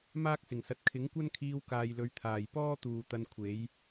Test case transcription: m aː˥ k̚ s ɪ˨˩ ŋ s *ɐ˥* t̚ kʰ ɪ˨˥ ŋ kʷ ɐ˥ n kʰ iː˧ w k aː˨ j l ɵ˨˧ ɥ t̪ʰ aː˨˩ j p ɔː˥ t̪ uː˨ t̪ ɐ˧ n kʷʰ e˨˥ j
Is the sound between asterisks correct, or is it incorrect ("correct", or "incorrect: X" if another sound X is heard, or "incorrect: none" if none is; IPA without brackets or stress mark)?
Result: incorrect: ɐ˨